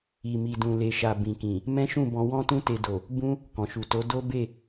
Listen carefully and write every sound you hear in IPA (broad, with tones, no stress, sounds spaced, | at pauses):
i˨ m i˨ d ũ˨ l e˨ ʃ a˨ b ĩ˨ k ĩ˨ | m ɛ̃˦ ʃ ũ˦˨ b ɔ̃˧ w ɔ̃˦ t ũ˦ t e˧ d o˨ | b ũ˧ | k ɔ̃˨ ʃ u˨ t o˨˦ d o˦ b e˦˨